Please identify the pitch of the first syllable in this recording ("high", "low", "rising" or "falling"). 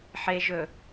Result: low